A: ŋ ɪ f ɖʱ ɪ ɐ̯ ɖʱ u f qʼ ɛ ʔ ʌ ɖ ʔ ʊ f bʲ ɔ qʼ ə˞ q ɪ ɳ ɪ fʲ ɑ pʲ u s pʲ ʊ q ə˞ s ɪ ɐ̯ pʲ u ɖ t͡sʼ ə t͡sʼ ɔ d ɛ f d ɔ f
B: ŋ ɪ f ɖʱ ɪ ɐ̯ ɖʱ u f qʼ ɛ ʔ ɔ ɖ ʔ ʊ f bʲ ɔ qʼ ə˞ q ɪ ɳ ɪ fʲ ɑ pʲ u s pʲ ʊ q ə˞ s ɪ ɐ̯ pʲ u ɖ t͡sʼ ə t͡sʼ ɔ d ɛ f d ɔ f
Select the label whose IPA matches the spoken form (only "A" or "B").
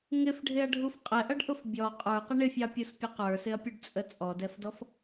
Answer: A